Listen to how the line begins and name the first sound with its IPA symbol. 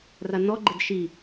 r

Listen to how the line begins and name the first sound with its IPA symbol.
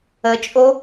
ə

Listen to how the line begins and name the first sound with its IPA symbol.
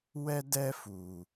w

